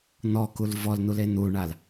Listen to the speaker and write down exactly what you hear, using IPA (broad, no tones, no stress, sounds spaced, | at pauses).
n̪ ɔ k u l v ɔ l n̪ u l e n̪ u ɳ a l